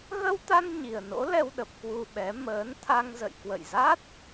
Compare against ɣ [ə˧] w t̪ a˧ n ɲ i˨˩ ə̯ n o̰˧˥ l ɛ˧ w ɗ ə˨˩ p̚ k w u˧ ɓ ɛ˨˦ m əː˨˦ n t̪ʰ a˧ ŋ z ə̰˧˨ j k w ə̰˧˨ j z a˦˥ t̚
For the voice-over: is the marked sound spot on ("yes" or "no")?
yes